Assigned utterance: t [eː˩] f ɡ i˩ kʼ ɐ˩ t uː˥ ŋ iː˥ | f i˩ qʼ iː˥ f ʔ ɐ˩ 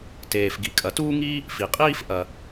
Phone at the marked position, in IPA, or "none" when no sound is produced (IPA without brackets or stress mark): eː˩